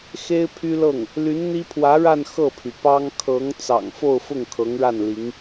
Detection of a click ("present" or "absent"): absent